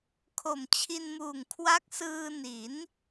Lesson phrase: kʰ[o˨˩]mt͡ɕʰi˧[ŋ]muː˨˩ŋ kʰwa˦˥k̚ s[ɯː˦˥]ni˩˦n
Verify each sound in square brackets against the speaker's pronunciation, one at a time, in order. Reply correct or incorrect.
correct, incorrect: n, incorrect: ɯː˧

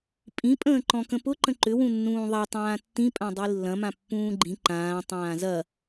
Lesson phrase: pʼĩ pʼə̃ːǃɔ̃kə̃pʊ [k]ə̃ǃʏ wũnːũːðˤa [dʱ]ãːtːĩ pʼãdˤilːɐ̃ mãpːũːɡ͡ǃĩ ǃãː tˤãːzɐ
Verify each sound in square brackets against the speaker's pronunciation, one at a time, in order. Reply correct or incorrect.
incorrect: ǃ, incorrect: tˤ

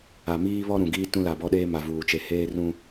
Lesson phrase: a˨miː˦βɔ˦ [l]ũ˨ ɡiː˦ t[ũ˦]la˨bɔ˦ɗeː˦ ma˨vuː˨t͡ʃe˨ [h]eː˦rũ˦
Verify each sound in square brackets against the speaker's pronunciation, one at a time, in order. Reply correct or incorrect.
incorrect: ɾ, correct, correct

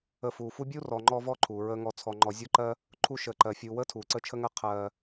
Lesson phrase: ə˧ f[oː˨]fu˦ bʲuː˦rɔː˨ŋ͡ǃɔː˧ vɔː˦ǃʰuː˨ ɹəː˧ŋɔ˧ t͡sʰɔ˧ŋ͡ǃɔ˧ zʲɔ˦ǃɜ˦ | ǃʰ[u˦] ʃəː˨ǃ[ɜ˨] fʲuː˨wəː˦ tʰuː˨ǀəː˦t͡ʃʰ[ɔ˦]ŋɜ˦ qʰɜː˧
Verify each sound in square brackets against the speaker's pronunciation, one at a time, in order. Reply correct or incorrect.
incorrect: uː˨, incorrect: u˧, correct, incorrect: ə˦

